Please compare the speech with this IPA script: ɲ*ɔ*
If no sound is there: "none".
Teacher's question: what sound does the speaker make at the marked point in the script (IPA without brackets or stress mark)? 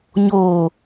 o